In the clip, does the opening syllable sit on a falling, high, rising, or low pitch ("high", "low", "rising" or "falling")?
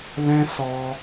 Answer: high